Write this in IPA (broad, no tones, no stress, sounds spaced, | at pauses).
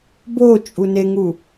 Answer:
b o t͡ʃʼ u n e ŋ u